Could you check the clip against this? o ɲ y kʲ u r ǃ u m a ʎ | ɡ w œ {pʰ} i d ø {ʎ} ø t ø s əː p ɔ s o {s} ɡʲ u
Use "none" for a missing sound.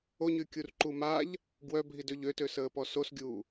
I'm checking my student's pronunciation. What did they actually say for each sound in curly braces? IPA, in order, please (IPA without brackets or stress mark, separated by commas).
bʱ, ʎ, s